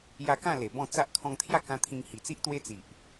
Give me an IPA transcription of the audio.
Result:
ja˧kã˥˧ le˨˩bɔ̃˥˧ t͡sa˦ʔ kʰɔ̃˧ŋt̪ʰja˥˧ kã˦ t̪ʰĩ˧ŋ hi˨˩t͡si˦ʔ t̪we˦t͡si˨ʔ

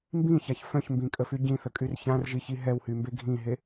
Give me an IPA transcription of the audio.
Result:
mbĩçaç fœ̃çmbĩkʼəfy ɟĩθəkʼyr çãrʒiçi ɦɛwhymbe ɡʱĩɦe

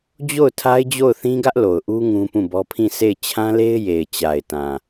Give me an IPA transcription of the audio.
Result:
d͡ʑo˦˨ʊ̯ tʰa˦ɪ̯d͡ʑo˦˨ʊ̯θĩ˦ɡä˦ʔ lo˨ʊ̯ʔu˦ ŋũ˦pũ˦˨bɔ˦ pʰĩ˦˨se˦˨ɪ̯ t͡ɕʰã˦le˦ɪ̯ je˨ɪ̯t͡ɕa˨ɪ̯tã˨

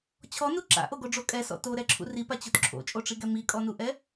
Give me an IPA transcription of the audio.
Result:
t͡ɕʰɔnu ǁa̰ʔoɡoɖ͡ʐo kʼɛsɔ̰ toɾɛǁʰṵ ripat͡ɕot ǁʰo̰t͡ʃʼoʈ͡ʂiɡɛ mikʼɔnuʔɛ

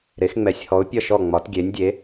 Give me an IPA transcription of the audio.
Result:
ɾe˩˧xŋ͡mɛ˩˧sʲhɔ˩˧ʊ̯ pʲʌ˧˩ʃɔ˧˩ ŋ͡mɒ˩˧tɡʲe˩˧nʲdʲe˩˧

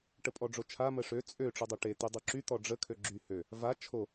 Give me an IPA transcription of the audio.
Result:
ʈəpʼɔɖ͡ʐot͡ʃʰa məʂø t͡sʼø ʈ͡ʂudˤoʈe t̪ydˤuǁy t̪ɔɖ͡ʐə kʰøɡ͡ǁy hø | va t͡ʃʰo

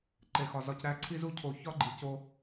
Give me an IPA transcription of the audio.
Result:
ǃe˨xɒ˨zɒ˧cɾæ˦ ǀʰi˧zu˧cʰo˨ çɒ˦ɡ͡ǃi˨co˧

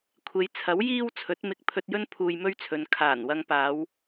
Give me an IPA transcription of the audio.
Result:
kʷʰe˨˧jt͡sʰɐ˨˥w jiː˥w t͡sʰɵ˨˥t̚mɪ˧k̚ pʰɵ˧t̚jɵ˥n pʰuː˧jmɵ˥ɥt͡sʰɵ˨˧n kʰaː˨˩n wɐ˧ŋpaː˨˧w

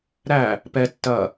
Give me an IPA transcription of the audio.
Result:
ɾæ | pɛ tːɐ

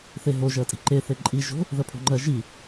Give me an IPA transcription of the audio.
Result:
θeɦo ʒɜtʼi̤ǃe θeǃʼi ʒo̤ | ðɜpʰo̤ŋ͡ǃɜ ʒi

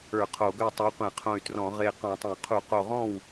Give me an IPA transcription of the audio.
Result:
ə˞˧˩˧ qʰo˧˩˧ɡœ˥˩ tˤə˞˨˥qʷẽ˧˩˧qʰõ˧˩y̯trɔ̃˧˩˧ ʁe˧˩qɔ̃˧˩˧tˤə̃˧˩˧y̯ qʰu˧˩˧qo˧˩ʁɔ̃˥˩w

